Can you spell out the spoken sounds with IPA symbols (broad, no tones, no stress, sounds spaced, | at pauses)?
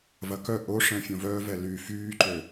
v ɐ k œ ʔ o ʂ ɛ̃ fʲ õ v œː v ɛ l y f yː ǃ ø